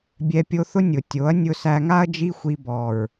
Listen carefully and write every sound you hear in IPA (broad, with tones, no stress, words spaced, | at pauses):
bʲɛ˧pʲo˧θʊ˦ nʲʊ˨ tʲo˨˦ɐ̯nʲʊ˧sæ˧ŋa˦ɐ̯ d͡ʒi˦xʷi˧bɔ˨ɹ